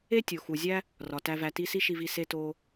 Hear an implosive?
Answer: no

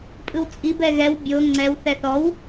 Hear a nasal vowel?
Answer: no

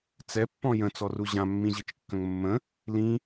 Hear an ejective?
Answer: no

